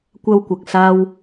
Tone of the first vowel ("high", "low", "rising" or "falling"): high